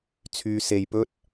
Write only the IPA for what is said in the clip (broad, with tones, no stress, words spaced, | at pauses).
t͡sʰyː˧se˧jpɵ˥t̚